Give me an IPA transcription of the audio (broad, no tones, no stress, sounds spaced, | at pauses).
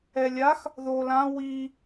ɛ lʲ a x | ð o l ã w i